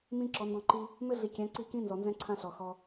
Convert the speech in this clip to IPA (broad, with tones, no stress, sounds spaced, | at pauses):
m ĩ˦ ǁ ɔ˨˦ n d ɔ̃˦˨ ǃ i˦ | m ɘ˦ ɮ i˨˦ kʲ ɛ̃˨˦ ǀ i˦˨ k ĩ˦ n z ɔ˨ n z ɛ̃˦ ǀʰ ã˦ ɬ ɔ˨ x ɔ˧